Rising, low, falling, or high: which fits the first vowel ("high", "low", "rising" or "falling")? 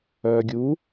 low